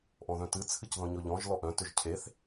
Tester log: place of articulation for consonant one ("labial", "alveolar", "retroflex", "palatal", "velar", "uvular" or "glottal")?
glottal